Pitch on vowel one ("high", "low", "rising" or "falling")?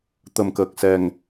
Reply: low